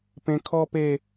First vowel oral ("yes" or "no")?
no